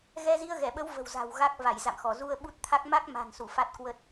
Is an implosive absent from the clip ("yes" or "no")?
no